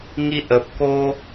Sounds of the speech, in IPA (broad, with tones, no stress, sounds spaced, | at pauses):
ŋ i˦ ʔ ə˨ p̚ k o˦